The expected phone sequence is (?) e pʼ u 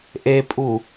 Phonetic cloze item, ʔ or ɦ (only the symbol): ʔ